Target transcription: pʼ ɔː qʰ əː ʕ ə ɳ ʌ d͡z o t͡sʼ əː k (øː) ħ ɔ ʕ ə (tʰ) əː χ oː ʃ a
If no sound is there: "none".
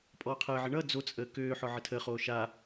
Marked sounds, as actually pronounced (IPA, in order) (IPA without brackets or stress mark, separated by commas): øː, tʰ